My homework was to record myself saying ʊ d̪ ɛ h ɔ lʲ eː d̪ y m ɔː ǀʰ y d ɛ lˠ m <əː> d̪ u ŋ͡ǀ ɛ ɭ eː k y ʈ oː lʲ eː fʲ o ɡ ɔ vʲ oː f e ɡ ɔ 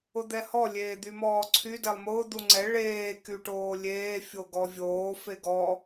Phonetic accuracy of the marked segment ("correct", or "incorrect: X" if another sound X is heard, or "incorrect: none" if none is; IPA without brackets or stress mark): incorrect: ʊː